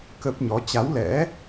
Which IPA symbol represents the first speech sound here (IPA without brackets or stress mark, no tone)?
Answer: k